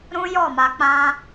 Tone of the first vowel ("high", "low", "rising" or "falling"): high